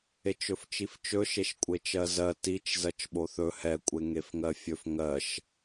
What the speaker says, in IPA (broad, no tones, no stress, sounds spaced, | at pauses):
e t͡ʃ ɵ f t͡ʃ i f t͡ʃ ɵ ʃ e ʃ kʷʼ e t͡ʃ ɜ z ɜ t i t͡ʃ z ɜ t͡ʃ ɓ o θ ɵ h ɛ kʷʼ e ŋ e f ŋ ɜ fʲ ɵ f ŋ ɜ ʃ